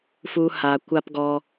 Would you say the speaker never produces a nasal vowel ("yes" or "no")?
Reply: yes